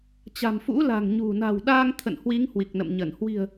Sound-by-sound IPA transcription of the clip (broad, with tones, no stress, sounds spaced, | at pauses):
t͡ɕ a̤˨˩ m f ṵ˧˥ l a̤˨˩ ŋ ɲ ṳ˨˩ n a̤˨˩ w ɗ aː˧ ŋ t̪ʰ ə̰˧˨ n h w i˨˦ ŋ h w i˨˩ k̚ n ə̰˧˨ m ɲ ə˧˩ n h w i̤˨˩ ə̯